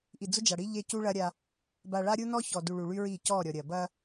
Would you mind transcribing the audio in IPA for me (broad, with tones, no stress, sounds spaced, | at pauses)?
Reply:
ʔ i˨ d͡z ʊ˦ d͡ʒ a˨ ɽ i˦ ʎ e˦ c u˦ ɭ ɐ˦ ɾʲ a˦ | b a˨ ɭ a˦ ɾʲ u˦ n ɔ˦ ç ɔ˨ d u˨ ɭ u˨ ɭ y˦ ɹ i˦˨ c ɔ˦˨ ɾʲ ɔ˨ ɾʲ ɐ˨ b ɐ˦